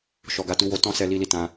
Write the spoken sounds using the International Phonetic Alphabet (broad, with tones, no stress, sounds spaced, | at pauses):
ʃ ɔ˨ ɡ a˨˦ t u˧ w o˧ t ɔ̃˦ s ɛ˧ l i˦ l i˦ t ã˧